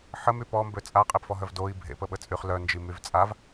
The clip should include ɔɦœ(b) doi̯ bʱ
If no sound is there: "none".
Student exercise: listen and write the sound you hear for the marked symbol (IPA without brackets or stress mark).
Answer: v